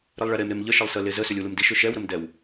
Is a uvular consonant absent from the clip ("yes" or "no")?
yes